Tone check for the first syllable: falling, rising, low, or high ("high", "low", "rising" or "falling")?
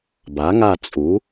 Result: rising